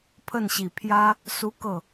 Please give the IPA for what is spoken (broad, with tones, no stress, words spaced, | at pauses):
pʰə˥˩nɕi˨˩ pʰjä˥ | su˥kɤ˥˩